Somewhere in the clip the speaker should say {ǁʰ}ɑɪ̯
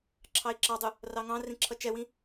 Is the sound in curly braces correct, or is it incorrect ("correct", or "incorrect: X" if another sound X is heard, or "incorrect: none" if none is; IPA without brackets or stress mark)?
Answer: correct